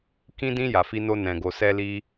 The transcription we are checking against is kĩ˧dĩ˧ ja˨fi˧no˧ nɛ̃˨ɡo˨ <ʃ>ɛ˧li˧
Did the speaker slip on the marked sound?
yes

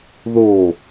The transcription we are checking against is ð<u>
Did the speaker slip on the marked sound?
yes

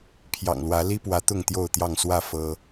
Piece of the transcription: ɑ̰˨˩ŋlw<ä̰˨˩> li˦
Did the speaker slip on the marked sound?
yes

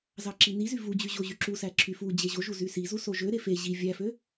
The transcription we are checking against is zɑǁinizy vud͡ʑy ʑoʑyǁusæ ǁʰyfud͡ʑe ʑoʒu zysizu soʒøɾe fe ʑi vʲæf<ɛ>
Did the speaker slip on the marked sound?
yes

